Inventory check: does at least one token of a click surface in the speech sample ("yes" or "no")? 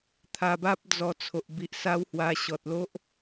no